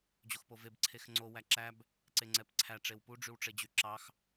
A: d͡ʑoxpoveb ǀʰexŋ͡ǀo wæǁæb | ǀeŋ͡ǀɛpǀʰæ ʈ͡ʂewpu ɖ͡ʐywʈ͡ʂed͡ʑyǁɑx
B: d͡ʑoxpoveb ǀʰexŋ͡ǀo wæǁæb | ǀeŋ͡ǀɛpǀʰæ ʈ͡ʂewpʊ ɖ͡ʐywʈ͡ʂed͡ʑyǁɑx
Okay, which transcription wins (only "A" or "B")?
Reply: A